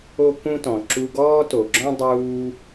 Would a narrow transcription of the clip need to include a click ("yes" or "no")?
yes